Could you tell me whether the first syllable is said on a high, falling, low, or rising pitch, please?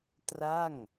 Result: falling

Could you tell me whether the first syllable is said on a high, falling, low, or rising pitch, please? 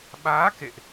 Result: rising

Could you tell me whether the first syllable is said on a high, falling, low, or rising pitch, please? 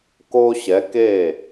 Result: high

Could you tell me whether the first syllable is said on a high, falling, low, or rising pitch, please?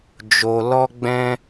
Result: low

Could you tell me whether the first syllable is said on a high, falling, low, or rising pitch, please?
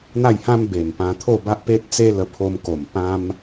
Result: falling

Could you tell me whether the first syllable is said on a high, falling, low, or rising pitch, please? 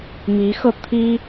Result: rising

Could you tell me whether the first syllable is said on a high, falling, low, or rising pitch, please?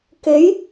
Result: rising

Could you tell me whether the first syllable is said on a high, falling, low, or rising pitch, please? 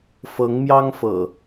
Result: rising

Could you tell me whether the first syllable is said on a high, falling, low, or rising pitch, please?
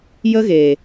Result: high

